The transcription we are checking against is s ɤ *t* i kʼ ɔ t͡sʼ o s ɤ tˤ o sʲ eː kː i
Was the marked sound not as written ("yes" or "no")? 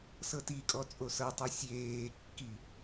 no